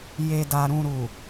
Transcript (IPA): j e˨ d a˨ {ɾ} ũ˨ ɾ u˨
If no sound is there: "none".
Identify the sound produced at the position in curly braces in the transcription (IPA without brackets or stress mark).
ɾ